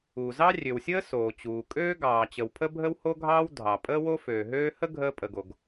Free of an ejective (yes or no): no